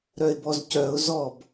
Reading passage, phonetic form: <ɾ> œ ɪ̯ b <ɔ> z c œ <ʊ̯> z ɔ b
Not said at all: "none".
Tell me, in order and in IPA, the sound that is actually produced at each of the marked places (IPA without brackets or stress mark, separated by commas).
ɾ, ɔ, ʊ̯